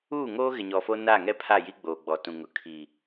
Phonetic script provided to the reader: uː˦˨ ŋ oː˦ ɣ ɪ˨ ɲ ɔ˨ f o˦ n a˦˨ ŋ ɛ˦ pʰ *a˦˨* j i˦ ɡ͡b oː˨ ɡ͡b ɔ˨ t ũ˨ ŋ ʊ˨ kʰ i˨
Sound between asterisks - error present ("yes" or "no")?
no